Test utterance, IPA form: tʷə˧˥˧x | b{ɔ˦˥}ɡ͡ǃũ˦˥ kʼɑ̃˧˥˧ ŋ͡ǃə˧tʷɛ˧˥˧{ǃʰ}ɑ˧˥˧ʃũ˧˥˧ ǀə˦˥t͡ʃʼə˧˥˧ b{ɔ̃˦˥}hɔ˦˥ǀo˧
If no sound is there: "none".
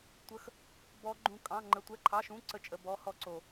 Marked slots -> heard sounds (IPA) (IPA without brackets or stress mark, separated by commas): ɔ˦˥, ǃʰ, ɔ˦˥